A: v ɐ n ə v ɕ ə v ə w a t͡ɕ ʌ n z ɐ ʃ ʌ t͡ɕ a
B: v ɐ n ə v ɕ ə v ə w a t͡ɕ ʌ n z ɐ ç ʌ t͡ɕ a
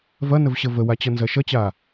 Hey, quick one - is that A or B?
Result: A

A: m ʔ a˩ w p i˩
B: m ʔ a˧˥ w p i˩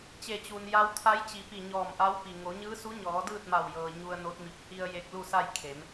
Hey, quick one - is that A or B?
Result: B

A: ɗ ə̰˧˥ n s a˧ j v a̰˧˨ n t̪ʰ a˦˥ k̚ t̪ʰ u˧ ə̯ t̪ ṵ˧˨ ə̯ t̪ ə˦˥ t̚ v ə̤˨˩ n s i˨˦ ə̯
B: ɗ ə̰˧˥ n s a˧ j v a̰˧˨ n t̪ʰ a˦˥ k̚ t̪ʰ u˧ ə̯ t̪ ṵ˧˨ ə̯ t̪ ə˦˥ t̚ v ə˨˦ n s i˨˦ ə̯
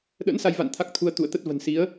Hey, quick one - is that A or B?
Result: A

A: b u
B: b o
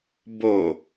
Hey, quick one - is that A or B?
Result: B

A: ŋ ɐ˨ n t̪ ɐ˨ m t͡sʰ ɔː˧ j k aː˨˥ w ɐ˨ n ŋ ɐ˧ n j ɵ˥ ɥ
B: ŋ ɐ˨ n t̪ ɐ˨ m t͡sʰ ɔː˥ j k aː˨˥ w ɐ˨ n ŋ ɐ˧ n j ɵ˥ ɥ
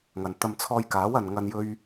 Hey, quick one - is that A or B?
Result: A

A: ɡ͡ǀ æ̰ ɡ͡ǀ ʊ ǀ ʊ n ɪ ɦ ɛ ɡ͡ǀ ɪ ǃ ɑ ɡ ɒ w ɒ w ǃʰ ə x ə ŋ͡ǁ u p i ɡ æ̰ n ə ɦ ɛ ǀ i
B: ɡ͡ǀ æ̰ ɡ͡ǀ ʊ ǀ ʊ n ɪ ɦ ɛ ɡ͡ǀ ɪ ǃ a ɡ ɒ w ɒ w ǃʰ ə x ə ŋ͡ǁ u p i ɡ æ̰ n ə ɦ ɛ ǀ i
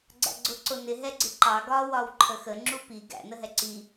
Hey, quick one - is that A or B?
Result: A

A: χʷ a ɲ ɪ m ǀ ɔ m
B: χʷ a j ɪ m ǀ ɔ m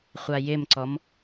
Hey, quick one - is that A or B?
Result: B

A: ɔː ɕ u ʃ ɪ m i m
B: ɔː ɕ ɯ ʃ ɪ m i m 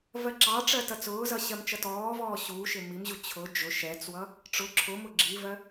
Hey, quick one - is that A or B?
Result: A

